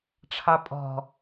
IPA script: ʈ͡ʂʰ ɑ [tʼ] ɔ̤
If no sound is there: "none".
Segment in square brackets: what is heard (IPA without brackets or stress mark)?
pʼ